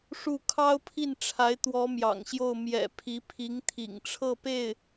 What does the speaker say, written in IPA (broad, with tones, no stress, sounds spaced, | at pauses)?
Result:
ʂ u˥˩ kʰ ɑ˥ ʊ̯ pʰ i˥˩ n ʈ͡ʂʰ a˧˥ ɪ̯ t̪ w ɔ˧˥ m j ɑ̰˨˩ ŋ ɕ j o˥˩ ʊ̯ m j ɛ̰˨˩ pʰ i˧˥ pʰ i˧˥ ŋ t̪ʰ ḭ˨˩ ŋ ʈ͡ʂʰ ɤ˥˧ p e˥˩ ɪ̯